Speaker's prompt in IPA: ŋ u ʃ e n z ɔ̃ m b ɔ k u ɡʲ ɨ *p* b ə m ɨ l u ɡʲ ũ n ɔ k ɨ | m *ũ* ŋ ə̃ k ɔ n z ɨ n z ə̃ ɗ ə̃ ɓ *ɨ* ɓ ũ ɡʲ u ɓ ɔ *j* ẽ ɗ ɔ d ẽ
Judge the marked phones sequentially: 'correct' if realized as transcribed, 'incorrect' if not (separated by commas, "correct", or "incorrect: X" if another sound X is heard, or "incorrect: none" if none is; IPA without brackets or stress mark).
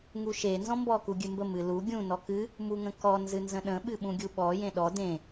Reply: incorrect: m, incorrect: u, correct, correct